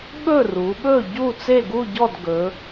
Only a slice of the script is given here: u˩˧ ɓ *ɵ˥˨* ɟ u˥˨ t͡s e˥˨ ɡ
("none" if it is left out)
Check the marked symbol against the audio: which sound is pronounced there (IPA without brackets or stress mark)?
ɵ˥˨